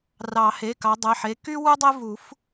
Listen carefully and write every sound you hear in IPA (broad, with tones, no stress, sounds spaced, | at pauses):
r ɑ˨˩˦ h e˩˧˩ k ɑ˨˦ dˤ e˩˧˩ ħ e˩˧˩ k y˥ w u˥ dˤ e˥ v u˨˩˦ f